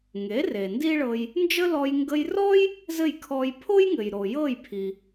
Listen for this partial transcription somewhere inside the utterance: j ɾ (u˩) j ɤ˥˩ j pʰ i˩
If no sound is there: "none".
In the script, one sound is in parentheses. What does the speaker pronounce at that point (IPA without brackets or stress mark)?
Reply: o˩